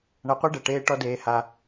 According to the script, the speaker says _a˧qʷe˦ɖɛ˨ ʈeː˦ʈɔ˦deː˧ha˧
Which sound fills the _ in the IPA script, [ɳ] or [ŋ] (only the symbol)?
ɳ